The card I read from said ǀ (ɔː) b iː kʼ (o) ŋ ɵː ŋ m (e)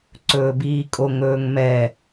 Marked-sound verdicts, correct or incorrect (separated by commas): incorrect, correct, incorrect